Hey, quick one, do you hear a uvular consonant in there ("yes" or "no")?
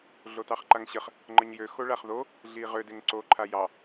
yes